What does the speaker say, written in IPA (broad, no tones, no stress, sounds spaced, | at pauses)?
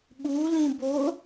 ɓ u l ĩ b o